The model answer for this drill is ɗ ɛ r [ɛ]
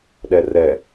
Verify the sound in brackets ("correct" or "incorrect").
correct